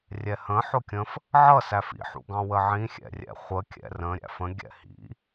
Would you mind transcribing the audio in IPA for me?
rʲ ɛ h ə̃ ħ ʊ kʲ ə̃ f | ʕ ʌ s æ f ḭ ħ ṵ ɡ ɑ̃ w ə ʕ ĩ xʲ ɛ̰ rʲ ɛ̰ χʷ ə kʲ ɛ̰ r ə̃ ɾʲ æ̰ f ə̃ ɡʲ ɛ̰ h ḭ

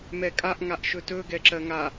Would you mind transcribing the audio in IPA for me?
m ɛ kʼ a ʔ ŋ a ʔ ʃ ɵ t ɵ ɡ ɛ ǁ ɜ ŋ a

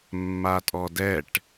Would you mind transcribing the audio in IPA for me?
mː a tʼ ɔ d ɛ ʈ

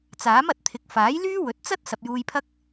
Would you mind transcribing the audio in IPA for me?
t͡s aː˨˥ m ɐ˨ t̚ t̪ʰ ɪ˨˥ k̚ f aː˨˥ j l yː˥ w ɵ˨˥ t̚ t͡s ɐ˥ t̚ s ɐ˨ p̚ j uː˧ j pʰ ɐ˥ k̚

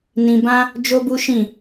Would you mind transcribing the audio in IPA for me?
n ĩ˧ b ã˦ | d͡ʒ o˦ b u˦ ʃ ĩ˦˨

